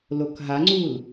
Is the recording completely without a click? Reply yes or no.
no